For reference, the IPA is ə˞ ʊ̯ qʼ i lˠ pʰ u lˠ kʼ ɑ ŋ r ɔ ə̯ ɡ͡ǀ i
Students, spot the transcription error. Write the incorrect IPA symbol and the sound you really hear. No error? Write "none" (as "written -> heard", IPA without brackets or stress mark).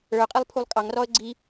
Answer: none